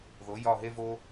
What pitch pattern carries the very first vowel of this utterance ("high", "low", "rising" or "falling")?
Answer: rising